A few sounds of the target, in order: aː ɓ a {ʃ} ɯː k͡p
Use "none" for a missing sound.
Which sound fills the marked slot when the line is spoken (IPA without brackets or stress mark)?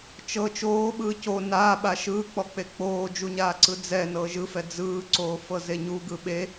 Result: ʃ